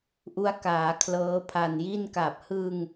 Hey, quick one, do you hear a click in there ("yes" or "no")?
no